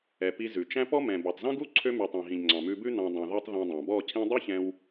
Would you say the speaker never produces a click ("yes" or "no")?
no